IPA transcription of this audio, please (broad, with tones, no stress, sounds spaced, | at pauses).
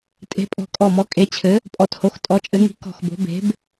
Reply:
tʼ e̤˨˥ pʼ ɔ̤˧˩ kʼ ɔ˧˩ m ɔ˨˥ kʼ e˨˥ t͡ɕʰ ɘ˨˥ | pʼ ɔ˧˩ t h o˨˥ x tʼ ɔ˨˥ t͡ʃʼ ɘ˨˥ ŋ i̤˨˥ k ɔ̤˧˩ x b o̤˨˥ b e̤˨˥ b